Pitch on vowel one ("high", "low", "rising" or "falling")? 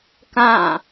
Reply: falling